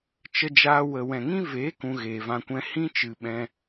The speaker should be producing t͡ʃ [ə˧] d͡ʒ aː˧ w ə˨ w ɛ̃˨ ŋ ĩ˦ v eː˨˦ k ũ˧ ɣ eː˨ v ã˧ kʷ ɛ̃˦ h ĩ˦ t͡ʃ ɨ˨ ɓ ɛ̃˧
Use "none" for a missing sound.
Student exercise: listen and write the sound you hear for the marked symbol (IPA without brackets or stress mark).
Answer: ə˧